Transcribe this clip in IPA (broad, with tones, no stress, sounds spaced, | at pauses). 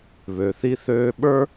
β ø˨ θ i˦ θ øː˦ ɓ ə˞˥